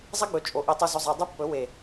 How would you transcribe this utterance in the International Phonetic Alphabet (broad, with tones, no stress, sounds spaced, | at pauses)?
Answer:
zˤ ɐ˦ ɡ͡b ɵ˨ t͡ʃʼ o˨ ʔ i˨ tˤ u˨ z ɵ˨ zˤ a˨ dˤ ɨ˦ pː ɵ˨˦ w e˨